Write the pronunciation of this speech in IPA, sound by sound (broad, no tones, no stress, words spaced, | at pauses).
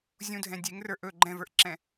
zʲũdʱɛ̃ dʲeŋrə˞ ʔɵ ɡ͡ǃɛ̃və˞ʔǁɛ̃